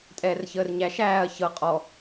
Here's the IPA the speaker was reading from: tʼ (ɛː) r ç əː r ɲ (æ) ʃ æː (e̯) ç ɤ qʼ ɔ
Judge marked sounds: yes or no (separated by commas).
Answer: yes, yes, no